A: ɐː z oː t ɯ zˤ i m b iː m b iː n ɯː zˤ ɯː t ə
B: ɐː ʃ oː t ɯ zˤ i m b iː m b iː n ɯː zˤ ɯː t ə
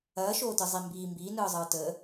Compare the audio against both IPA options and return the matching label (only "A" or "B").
B